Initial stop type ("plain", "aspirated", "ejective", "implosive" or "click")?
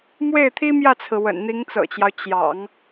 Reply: aspirated